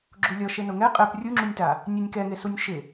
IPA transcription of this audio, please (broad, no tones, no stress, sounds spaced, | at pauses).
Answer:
ɡ͡ǁ u lʲ ɔ ʃ e n ʊ ŋ ɛ qʼ ɛ p rʲ u ŋ͡ǁ u nʲ t a | nʲ e nʲ k ɛ ŋ e s u nʲ ʃ ɪ